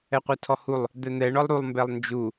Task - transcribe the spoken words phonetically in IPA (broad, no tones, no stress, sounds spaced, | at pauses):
ɛ qʷ ɛ tʰ ɔ h u lˠ | d̪ ɛ n̪ ɛ ɳ ɔ lˠ ɾ u lˠ m b ɛ lˠ n d͡ʒ u